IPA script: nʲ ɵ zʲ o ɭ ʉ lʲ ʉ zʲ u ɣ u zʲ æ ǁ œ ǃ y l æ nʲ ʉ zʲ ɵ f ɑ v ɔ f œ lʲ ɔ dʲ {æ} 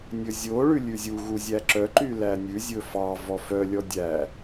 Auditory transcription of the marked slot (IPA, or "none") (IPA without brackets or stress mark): æ